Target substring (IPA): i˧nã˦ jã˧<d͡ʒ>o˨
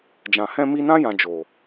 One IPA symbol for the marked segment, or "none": d͡ʒ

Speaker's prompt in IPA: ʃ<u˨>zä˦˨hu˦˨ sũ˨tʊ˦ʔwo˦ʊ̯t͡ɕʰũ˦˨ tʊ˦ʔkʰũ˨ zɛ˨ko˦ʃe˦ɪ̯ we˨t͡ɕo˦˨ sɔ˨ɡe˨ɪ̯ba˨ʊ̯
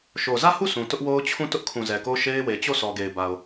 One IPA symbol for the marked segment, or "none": o˨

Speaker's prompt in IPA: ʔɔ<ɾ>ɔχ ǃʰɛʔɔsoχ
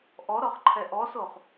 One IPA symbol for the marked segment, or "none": ɾ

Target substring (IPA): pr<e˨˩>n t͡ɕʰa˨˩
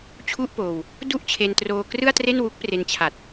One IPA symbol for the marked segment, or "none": e˧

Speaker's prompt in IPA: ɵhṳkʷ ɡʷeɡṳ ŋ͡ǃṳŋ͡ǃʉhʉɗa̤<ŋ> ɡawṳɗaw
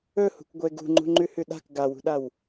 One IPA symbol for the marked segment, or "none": k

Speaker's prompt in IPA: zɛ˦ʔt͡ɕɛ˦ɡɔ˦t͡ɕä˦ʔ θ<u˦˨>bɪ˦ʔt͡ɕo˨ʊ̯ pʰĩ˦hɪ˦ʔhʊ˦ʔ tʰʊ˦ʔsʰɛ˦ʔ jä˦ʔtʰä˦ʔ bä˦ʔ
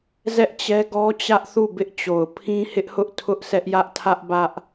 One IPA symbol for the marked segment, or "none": u˦˨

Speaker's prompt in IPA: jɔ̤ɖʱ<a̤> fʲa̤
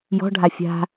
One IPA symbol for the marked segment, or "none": a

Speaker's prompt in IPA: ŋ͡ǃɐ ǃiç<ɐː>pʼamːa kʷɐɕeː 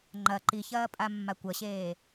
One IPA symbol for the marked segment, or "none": ɐː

